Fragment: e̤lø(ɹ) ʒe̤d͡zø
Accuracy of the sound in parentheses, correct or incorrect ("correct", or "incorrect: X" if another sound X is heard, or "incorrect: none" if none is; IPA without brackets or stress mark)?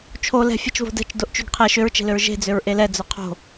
correct